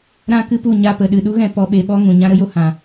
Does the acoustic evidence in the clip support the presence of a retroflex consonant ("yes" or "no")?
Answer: no